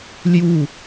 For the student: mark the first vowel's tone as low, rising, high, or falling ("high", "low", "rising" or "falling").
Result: falling